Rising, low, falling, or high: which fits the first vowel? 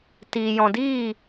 low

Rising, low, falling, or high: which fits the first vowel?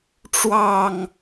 falling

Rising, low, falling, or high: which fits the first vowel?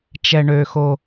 low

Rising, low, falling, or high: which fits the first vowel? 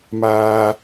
high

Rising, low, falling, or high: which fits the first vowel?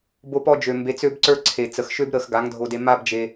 high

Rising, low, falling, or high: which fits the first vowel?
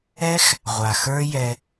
high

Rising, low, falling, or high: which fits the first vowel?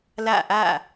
falling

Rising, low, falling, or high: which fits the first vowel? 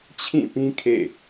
falling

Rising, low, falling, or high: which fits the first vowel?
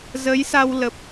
rising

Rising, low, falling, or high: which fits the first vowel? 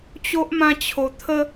high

